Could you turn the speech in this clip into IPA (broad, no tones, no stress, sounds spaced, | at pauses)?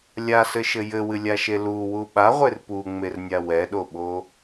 lʲ a s ɘ ʃ ɘ j ɘ w ɨ lʲ a ʃ e l u w u ɓ a ʁʷ e r p u ŋ͡m e r nʲ a w ɛ ɗ o ɓ o